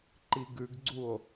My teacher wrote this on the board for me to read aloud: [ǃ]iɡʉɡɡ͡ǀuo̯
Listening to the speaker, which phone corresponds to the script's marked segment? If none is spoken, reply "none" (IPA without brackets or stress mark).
ǃ